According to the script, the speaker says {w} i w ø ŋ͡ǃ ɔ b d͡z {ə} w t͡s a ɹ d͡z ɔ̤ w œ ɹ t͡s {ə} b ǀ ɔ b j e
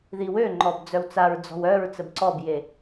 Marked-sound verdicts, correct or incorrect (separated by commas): incorrect, incorrect, correct